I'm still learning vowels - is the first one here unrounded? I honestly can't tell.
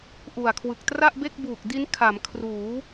no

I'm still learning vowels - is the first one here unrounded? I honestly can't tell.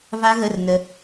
yes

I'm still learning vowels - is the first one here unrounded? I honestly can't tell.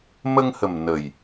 yes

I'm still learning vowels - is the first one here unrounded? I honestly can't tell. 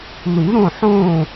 no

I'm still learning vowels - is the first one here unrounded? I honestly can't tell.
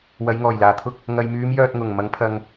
yes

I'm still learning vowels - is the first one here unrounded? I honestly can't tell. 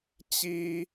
yes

